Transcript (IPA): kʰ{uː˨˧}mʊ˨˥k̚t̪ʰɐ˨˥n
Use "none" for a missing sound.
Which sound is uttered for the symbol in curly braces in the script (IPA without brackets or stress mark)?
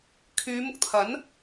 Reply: yː˨˧